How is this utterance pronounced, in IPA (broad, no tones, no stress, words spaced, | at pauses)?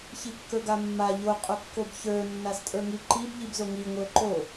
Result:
çikːə˞ɡamːa ʎo qʼokːobçə˞ nːastʼə˞ŋiǃib ʎibzoŋi ŋʷə˞ǃo